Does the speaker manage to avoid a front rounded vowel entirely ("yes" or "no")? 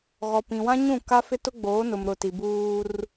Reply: yes